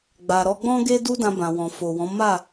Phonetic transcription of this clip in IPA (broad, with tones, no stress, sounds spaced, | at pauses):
ɡ͡b a˨ ɾ ɔ˧ ɡ͡b ɔ̃˦ ɡ e˦ d u˦ d ã˧ b ã˨ w ɔ̃˨ f o˨ w ɔ̃˨˦ m a˦˨